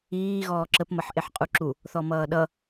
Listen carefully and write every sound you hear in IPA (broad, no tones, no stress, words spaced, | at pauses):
iː ɣɔːǁəp mʌħʔeħqʼuǁu | θɔmʌːɗʌ